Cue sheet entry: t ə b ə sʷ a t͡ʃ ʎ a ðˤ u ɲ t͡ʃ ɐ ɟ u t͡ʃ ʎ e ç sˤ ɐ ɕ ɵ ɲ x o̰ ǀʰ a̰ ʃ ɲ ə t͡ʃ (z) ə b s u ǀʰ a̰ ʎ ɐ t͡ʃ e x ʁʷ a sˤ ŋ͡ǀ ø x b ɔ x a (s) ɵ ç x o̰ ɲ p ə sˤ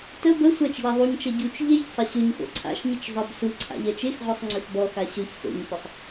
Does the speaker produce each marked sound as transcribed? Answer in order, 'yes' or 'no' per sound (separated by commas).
no, no